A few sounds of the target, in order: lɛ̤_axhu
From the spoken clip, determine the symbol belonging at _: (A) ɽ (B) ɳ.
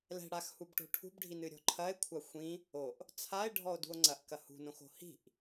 A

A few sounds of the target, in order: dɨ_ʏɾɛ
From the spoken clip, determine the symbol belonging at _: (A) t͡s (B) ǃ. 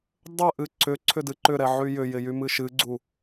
B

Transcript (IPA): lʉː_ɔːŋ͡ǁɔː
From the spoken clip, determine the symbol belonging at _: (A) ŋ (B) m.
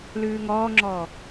A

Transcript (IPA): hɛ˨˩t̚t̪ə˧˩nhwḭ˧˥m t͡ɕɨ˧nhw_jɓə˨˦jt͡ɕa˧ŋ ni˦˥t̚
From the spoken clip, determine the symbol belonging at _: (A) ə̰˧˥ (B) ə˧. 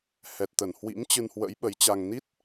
A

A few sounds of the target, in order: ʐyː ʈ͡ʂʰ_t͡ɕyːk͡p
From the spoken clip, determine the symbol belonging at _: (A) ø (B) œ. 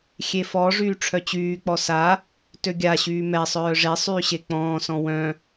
B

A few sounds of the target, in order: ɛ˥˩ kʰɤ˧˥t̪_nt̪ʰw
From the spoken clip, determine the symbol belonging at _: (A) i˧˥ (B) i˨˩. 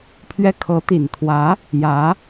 B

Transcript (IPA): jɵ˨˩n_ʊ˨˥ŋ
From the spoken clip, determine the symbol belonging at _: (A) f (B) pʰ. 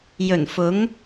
A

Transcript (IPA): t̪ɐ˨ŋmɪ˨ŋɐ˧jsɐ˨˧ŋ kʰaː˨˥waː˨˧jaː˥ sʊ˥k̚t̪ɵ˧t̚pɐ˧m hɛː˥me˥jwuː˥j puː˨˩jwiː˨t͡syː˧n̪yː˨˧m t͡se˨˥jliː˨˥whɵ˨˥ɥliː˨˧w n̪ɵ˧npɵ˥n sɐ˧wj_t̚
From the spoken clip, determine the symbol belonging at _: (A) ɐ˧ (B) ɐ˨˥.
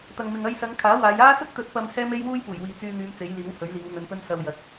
B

